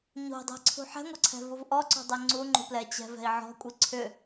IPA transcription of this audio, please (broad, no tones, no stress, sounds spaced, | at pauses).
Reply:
ɲ o̤ dˤ ɛ̤ ǀʰ ṳ ħ ɛ̤ ŋʷ ʌ ǀʰ ɛ̤ v u v ʔ ɔ ǀ ɔ̤ dˤ ɛ ŋ͡ǀ u ŋ͡ǃ ṳ p l ɛ t͡ɕ ɛ̤ v ɛ̤ i̯ ʕ ɔ̤ kʷʼ i ǀʰ ʏ